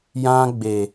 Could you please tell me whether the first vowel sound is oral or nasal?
nasal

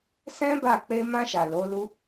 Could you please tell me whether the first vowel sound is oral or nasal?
nasal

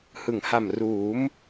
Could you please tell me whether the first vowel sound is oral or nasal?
oral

